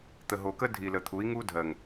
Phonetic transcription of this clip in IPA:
t̪ə˨ɦo˨kə˦ dʱi˨lə˨t̪ʰu˨˦i̯ ŋu˦dʱɜ˨ŋ

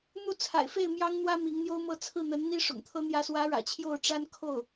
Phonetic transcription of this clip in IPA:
n̪u˥˩t͡sʰa̰˨˩ɪ̯fe˥˩ɪ̯ mjɑ˥ŋn̪wä˥ mi˧˥ŋn̪jo˥ʊ̯mɤ˥˧ t͡sʰɹ̩˥˩n̪ə˧˥nn̪i˥ ʂʊ̰˨˩ŋt̪ʰɤ˥ n̪jä˧˥swä˧˥ɻä̰˨˩ t͡ɕʰjo˥˩ʊ̯ʈ͡ʂa˥n kʰo˥˩ʊ̯

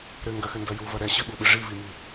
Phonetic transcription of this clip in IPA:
ɾɘŋɡɐxɘndɐ juvɐ ɾɛɕɨɓuɓɨ ʐivimi

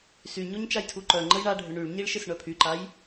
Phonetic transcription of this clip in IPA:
syɲoɲ t͡ʃajtʰuǃœŋ͡ǃəj ɳaɖʱʏ ɳyɭɲiɭ ʃɪsɳœpʰyǃaj

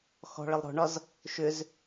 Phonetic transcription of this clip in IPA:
xɔ̤ɭəlˠ ɾɔ̤ɳɒz | ʃʏz

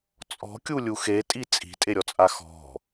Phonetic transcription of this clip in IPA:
t͡sʼɔ̤kʲulʲu xetʼi t͡sʼi̤tʼeɾʲɔt͡sʼa xɔ̤

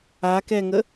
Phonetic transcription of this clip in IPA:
akɛŋə

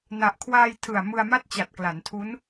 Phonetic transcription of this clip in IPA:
na˨˩ʔkʰwaː˧jtʰɯ˨˩a̯ mɯ˧a̯ma˥˩t̚t͡ɕa˨˩t̚ kla˩˦ntʰu˦˥n

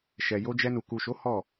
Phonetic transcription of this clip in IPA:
ʃɛ˨jo˧d͡ʒɛ˧nu˨ ku˨ʃo˨˦ hɔ˦˨

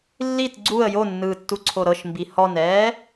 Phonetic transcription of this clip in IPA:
lːit ɡ͡ǀuə̯ jonːɯːtːuǀʰo ɾɤʃmbi hɔnɛː

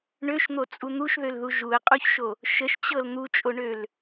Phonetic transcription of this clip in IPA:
ɳøʃn̪ot͡sʼu n̪uʃðølðu ʒuə̯qʼuçʃo | ʃəʃt͡ɕɤl n̪ut͡ʃʼoɳøl

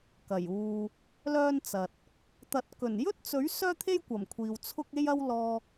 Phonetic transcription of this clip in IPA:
kɐ˨˩j uː˨ | lœː˥nt͡sɐ˨t̚ | t̪ɐ˨t̚kɵ˨˩njɵ˥t̚t͡sɵ˨˥ɥ sœː˥t̪ʰe˥jkʷɐ˨˩m kʷʰiː˨wt͡sʰʊ˥k̚ e˥jɐ˥w lɔː˧

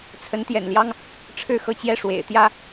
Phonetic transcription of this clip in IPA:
t͡sʰə˧˥nt̪jɛ̰˨˩nljɑ˥ŋ | ʈ͡ʂʰɻ̩˥˧xɤ˥˧t͡ɕjɛ˥˩ ʂwḛ˨˩ɪ̯t̪jä˥

